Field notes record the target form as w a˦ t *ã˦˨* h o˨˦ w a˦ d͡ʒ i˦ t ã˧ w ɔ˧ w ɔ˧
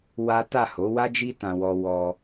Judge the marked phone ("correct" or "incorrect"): incorrect